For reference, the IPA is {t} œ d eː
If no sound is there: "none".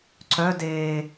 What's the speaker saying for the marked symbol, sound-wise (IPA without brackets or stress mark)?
ǀ